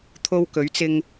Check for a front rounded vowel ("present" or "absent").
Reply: absent